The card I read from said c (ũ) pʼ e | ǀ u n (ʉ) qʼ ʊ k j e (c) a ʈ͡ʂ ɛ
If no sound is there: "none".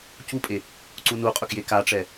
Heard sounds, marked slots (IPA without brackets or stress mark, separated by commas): u, u, k